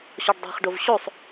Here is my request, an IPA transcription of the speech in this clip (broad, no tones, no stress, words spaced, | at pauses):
ɕɔɖdˤe̤χɖov ɕosˤ